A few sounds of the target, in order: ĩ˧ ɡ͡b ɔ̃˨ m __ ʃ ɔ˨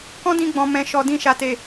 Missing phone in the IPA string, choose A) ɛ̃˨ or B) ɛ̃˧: A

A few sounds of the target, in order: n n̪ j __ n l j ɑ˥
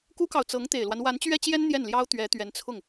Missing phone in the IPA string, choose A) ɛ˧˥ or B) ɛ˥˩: B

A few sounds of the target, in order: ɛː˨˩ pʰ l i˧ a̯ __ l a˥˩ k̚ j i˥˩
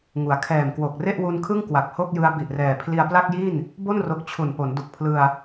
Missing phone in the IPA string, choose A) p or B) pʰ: A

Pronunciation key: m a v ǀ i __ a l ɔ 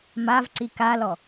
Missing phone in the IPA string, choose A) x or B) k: B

